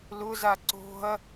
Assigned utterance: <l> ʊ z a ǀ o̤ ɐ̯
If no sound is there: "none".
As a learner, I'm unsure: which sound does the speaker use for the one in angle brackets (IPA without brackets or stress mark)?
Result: l